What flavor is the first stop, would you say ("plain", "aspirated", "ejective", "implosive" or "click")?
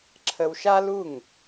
click